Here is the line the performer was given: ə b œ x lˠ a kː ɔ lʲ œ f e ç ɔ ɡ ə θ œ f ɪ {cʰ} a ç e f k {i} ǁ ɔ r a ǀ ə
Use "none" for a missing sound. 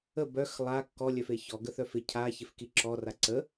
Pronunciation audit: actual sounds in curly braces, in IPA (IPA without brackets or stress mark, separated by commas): cʰ, i